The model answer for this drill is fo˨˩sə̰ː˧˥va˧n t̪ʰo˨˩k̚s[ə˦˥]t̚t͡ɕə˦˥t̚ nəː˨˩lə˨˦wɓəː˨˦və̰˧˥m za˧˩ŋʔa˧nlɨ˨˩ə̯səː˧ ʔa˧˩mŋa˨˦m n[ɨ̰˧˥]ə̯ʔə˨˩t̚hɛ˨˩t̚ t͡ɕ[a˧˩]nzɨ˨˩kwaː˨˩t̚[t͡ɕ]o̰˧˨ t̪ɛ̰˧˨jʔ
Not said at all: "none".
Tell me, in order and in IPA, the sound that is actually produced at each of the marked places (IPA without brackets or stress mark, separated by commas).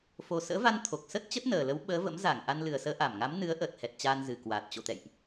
ə˦˥, ɨ˨˦, a˧, t͡ɕ